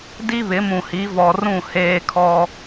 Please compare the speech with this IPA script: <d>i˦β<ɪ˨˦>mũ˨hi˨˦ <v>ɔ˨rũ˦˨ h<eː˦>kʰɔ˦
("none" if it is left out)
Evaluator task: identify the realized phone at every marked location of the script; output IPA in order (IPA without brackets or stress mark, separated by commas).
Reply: d, ɪ˨˦, v, eː˦